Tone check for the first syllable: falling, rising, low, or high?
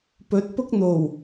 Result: rising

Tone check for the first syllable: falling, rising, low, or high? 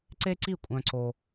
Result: high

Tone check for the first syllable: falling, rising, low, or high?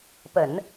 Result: low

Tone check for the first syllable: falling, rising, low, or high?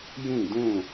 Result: falling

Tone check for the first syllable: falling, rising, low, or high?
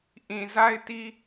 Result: low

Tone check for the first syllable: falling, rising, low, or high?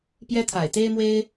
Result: high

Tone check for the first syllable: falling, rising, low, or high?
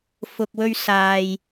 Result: low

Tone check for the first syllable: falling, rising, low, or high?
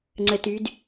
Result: low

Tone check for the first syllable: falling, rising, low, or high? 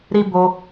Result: high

